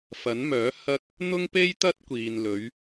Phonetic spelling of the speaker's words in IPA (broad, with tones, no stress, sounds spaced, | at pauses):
f ɐ˨˥ n m œː˨˥ h ɐ˧ k̚ | n̪ ʊ˥ ŋ p e˥ j t̪ ɐ˥ t̚ kʷ iː˨ n l ɵ˨˧ ɥ